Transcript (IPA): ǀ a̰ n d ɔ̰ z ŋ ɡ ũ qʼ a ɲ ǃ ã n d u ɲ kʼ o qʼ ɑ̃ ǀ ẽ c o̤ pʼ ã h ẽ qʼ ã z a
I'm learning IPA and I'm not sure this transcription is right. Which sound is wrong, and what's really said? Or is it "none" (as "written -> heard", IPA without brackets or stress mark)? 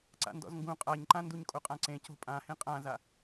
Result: ɑ̃ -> ã